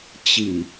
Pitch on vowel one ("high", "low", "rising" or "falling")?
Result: low